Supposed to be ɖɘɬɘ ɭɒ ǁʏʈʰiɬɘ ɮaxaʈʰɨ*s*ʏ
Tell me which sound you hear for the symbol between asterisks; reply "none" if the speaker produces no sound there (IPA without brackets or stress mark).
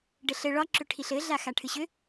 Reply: ɕ